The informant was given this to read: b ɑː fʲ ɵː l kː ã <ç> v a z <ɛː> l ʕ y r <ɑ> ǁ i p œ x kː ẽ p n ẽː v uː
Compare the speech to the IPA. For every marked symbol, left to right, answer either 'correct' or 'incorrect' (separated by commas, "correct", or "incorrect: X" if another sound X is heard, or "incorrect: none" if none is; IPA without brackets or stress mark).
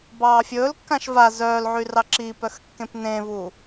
incorrect: ʃ, incorrect: œː, correct